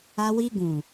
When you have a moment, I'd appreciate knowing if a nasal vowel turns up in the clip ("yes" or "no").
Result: yes